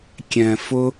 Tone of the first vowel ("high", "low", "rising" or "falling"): low